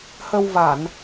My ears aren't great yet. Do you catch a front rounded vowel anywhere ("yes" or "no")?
no